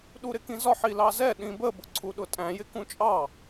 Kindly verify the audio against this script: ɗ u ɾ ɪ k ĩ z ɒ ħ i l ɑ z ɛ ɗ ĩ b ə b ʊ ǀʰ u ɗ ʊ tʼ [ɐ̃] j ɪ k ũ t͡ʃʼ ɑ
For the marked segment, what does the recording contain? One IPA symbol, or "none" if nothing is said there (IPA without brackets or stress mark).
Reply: æ̃